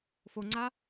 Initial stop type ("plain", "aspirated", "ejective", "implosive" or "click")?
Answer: click